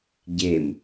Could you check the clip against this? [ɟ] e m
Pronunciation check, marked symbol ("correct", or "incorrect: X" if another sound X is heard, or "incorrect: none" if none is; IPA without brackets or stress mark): correct